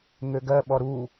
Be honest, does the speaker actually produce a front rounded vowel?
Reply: yes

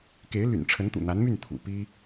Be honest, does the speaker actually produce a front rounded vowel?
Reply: yes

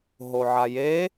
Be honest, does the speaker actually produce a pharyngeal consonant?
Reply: yes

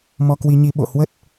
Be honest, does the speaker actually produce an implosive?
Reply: yes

